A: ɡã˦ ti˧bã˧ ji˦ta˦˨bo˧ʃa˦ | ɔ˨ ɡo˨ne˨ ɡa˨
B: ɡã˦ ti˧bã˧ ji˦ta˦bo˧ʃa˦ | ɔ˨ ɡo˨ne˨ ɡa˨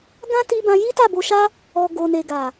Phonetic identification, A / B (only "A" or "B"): A